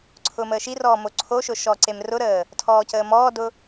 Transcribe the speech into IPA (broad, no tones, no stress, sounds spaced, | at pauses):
ǀʰ ʊː m əː ʃ i r ɔː m o ǀʰ o ʃ ʊ ʃ ɔ ǀ e m r ʊ ɾ əː | tʰ ɔː c əː m ɔː d ʊ